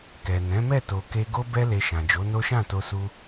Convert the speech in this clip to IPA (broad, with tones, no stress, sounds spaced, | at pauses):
k ɛ˨ n ɛ̃˨˦ m ɛ˦˨ t o˨ k e˧ ɡ o˦ b ɛ˦ l e˧ ʃ ã˨ d͡ʒ o˨˦ n o˦ ʃ ã˦˨ t o˧ s u˧